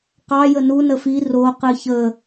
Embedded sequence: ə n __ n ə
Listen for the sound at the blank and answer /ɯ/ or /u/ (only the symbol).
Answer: u